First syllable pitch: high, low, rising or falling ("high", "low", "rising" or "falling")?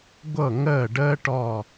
falling